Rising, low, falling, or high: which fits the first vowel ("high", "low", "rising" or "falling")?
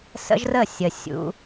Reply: high